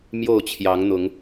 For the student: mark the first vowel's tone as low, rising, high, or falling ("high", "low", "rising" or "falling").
falling